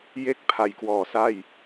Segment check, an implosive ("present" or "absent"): absent